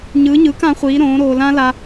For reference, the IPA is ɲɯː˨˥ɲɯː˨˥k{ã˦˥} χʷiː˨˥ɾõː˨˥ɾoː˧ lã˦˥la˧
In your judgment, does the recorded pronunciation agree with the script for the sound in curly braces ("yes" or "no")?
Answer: no